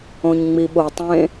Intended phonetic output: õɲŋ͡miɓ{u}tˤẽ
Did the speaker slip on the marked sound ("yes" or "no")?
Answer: yes